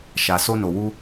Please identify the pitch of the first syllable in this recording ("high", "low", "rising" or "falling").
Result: low